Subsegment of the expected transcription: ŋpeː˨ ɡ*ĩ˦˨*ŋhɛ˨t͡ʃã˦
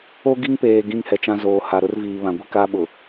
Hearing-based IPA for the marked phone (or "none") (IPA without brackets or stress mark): ĩ˦